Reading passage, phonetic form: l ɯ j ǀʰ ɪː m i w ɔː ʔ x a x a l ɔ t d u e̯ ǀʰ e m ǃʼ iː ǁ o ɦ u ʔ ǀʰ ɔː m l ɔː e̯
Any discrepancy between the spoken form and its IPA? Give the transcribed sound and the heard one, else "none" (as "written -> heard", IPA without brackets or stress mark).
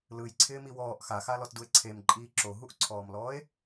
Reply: none